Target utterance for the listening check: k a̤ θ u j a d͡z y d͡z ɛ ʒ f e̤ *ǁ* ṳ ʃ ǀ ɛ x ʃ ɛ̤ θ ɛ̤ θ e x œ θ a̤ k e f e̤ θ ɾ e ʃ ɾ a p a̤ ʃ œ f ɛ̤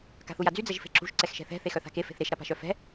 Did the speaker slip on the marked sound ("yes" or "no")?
no